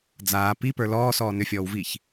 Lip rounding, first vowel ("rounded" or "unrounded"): unrounded